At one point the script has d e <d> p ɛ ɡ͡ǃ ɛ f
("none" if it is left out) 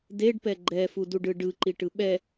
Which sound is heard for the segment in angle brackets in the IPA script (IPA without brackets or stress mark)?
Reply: ɖ